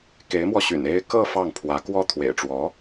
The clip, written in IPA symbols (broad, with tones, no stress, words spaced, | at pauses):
ke˧˥ɪ̯mwɔ˧ɕy̰˨˩n e˥ɪ̯ kɤ˥˧ fɑ˥˩ŋpʰwä˧˥kwɔ˥ t̪ʰwḛ˨˩ɪ̯ʈ͡ʂwɔ˧˥